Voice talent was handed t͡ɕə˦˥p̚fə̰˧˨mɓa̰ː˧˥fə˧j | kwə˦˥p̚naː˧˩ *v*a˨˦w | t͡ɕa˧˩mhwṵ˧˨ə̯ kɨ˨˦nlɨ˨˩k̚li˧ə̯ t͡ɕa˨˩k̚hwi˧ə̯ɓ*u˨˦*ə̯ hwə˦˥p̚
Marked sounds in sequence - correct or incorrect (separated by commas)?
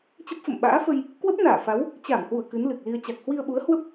incorrect, correct